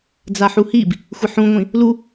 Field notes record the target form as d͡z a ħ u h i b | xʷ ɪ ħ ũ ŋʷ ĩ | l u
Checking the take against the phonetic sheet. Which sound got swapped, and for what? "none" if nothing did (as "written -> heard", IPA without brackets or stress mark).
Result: none